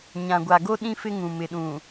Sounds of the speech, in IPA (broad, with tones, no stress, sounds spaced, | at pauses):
ɲ ã˨ ɡʷ a˨ ɡ o˦ ɗ ĩ˦ f ɪ˦ ŋ ũ˨ m ɪ˨ ɗ ũ˨